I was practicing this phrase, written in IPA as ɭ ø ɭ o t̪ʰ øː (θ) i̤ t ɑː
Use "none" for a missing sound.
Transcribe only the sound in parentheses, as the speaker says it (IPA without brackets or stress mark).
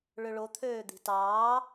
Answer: d̪